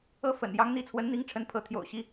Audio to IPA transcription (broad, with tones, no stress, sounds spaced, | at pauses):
ɤ˥˩ f ə̰˨˩ n j ɑ˧˥ ŋ n̪ i˧˥ t͡sʰ w ə˧˥ n n̪ i˧˥ ŋ ʈ͡ʂʰ ə˧˥ n pʰ ɤ˧˥ t̪ʰ j o̰˨˩ ʊ̯ ɕ i˥